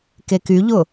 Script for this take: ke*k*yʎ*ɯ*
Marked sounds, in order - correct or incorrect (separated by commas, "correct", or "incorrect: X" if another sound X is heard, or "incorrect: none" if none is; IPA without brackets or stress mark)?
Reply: correct, incorrect: ʊ